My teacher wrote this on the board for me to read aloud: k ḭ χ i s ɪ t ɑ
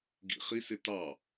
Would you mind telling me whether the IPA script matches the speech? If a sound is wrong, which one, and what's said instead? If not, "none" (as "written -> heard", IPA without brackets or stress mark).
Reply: k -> ɡ